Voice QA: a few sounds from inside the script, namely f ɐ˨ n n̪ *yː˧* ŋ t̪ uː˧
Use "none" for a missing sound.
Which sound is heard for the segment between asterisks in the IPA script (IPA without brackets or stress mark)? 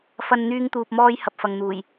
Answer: yː˧